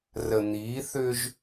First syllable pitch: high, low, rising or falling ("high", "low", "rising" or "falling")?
low